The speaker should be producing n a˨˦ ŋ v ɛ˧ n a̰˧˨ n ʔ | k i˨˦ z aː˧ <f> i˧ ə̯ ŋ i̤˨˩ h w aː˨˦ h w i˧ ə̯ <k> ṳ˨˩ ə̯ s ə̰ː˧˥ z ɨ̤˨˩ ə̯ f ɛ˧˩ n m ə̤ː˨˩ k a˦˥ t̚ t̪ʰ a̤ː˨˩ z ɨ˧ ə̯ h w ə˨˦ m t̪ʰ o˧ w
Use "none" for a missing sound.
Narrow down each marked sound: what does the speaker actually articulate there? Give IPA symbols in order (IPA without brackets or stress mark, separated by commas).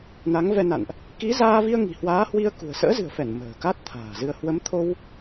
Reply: v, k